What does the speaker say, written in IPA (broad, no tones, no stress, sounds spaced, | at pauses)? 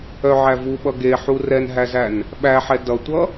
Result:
œ ʕ æ v u ɓ ʌ ɡ e ħ u r ɛ n ɦ æ z æ n | ɓ æ ħ ɛ d ʌ tʷ ʌ